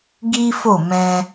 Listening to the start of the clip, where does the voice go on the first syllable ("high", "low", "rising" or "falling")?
high